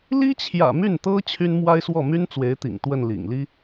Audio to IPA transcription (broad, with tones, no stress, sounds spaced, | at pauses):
l i˥ t͡ɕʰ j ä̰˨˩ m y˥˩ n t̪ ɤ˥ t͡ɕʰ y˥ n m w a˥ ɪ̯ s w ɔ˥˩ m y˥ n t͡s w e˧˥ ɪ̯ t̪ ḭ˨˩ ŋ t̪ w ə˥˩ n l ḭ˨˩ ŋ l i˥